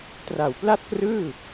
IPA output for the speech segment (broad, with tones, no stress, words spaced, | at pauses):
tra˨˩wpla˥˩t̚krɯː˥˩